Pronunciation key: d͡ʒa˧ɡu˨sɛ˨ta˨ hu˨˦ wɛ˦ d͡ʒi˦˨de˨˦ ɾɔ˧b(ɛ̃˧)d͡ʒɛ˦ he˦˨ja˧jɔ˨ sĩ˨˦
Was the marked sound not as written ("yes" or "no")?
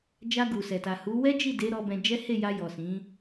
no